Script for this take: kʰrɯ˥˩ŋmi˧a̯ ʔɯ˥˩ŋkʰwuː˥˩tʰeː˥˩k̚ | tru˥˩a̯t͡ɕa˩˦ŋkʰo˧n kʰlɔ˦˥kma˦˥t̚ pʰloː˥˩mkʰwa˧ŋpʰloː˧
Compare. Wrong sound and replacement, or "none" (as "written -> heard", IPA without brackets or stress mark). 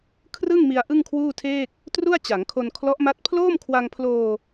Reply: k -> ʔ